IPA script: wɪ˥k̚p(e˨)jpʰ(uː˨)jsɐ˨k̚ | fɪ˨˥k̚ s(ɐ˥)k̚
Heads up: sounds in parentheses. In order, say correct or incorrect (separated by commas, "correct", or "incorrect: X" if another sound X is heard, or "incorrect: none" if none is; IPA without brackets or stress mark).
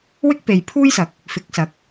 correct, incorrect: uː˥, incorrect: ɐ˨˥